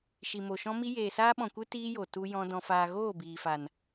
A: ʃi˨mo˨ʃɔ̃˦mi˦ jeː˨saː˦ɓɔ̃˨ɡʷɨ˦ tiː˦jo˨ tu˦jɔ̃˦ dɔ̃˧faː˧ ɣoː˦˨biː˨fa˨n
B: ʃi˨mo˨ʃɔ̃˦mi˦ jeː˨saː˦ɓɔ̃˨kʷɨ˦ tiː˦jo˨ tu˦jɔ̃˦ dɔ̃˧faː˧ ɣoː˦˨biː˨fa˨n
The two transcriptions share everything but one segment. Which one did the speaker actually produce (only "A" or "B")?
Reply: B